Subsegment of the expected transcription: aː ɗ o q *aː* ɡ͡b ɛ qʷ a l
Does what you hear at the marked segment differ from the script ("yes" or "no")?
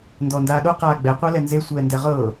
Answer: no